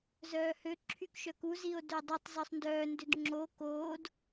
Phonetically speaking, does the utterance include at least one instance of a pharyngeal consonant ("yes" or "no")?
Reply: no